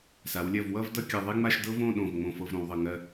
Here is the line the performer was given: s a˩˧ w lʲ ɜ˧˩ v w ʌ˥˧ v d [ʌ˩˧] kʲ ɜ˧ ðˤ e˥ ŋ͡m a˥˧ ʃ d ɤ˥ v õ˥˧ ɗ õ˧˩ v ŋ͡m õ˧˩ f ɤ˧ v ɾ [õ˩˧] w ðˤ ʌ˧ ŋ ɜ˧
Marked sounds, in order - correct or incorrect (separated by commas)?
incorrect, correct